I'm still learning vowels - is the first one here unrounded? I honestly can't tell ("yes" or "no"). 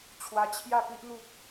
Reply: yes